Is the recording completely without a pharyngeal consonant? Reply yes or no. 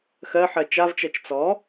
no